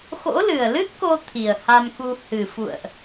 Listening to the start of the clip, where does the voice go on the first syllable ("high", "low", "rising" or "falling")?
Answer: rising